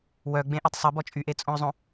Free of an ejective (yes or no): no